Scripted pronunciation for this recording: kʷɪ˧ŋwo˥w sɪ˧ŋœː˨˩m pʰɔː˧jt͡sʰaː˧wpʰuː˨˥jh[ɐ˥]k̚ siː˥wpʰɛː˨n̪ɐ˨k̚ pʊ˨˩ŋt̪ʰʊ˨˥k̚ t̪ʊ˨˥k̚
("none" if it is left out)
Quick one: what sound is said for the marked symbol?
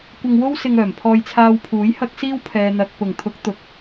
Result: ɐ˥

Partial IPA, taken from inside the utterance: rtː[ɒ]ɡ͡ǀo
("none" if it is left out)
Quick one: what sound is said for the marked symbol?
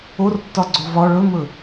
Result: ɒ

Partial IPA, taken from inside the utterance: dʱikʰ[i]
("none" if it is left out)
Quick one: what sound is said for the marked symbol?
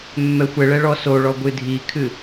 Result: ɨ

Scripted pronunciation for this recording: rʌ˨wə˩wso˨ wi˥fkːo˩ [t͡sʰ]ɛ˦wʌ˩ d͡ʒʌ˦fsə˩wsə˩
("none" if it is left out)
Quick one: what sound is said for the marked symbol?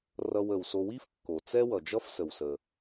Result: t͡s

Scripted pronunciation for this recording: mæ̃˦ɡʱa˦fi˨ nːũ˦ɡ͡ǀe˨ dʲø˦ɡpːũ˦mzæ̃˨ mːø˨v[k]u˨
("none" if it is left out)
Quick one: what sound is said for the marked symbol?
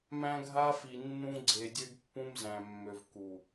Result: k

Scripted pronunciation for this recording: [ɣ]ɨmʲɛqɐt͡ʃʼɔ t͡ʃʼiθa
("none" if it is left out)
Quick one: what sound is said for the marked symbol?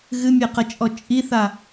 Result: ɣ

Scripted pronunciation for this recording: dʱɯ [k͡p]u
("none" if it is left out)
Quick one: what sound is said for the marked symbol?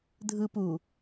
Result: p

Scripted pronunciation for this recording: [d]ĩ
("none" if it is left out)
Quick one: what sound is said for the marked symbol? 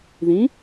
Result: ð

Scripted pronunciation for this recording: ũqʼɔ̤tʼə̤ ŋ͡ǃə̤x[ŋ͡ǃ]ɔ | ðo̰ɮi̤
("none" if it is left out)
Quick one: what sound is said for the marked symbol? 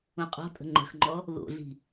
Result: ŋ͡ǃ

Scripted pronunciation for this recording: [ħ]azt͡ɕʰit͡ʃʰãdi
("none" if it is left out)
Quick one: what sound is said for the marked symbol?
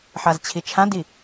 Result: ħ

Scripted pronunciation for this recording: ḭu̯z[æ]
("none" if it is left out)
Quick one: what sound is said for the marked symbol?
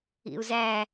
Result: æ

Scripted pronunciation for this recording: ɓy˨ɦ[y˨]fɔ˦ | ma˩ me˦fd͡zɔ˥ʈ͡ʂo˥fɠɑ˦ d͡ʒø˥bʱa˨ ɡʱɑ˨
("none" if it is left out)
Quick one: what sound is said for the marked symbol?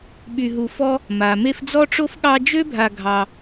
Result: u˨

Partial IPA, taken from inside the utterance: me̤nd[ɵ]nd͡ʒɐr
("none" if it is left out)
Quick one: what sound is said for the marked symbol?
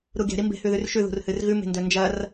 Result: ɵ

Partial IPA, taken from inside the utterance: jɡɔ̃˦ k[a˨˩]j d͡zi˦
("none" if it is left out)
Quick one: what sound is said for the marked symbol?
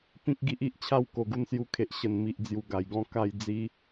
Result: a˥˧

